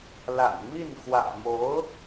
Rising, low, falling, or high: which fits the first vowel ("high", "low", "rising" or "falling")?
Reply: low